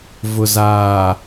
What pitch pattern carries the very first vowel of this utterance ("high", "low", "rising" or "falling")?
low